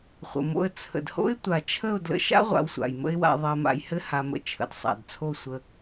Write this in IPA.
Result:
χʷə̰˨mo̰˧ə̯ t͡sʰə̰˨dho̰˦ɪ̯ tʷa˨t͡ʃʰə˦˨ʊ̯ dlə̰˧ʃa̰˦ ʁʷa̰˧wsʷa̰˨jmə̰˦ɪ̯wa̰˧ ðˤɜ˧ma̰˧jhɘ˦ ha˧mə̰˧ t͡ʃʰə̰˨dsˤa̰˨dt͡sʰo˦˨ sʷə˧

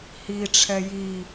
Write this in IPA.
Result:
hiʈ͡ʂʰɛ ji

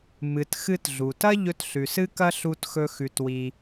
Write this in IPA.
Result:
mɨ˨t xɨ˧t ɮu˨tɐ˦ ʎɵ˧tɬʉ˨sɨ˦kɐ˦ ɬu˦txɵ˦xʉ˧twi˧

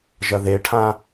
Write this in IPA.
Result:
ʒɐðeʈʰã

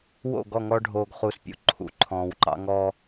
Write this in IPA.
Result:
wo̰˦˨ɡɔ˦˨ ŋɔ˦ɖʱoː˨ɡχu˨˦spʲṵ˨ ǃʰṵ˨ǃʰɔ̃ː˨wǃɑ̰˦ ŋɔ˦

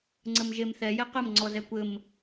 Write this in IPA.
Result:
ŋ͡ǀɘmʒemθɛ jɛqɘm ŋ͡ǀɔzɛkʷɘm

